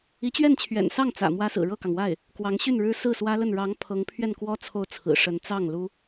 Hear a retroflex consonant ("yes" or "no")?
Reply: yes